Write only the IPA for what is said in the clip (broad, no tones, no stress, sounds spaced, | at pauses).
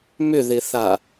m ʏ ð ɪ θ a